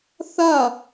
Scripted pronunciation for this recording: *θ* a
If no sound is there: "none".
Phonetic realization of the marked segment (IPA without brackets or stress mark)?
θ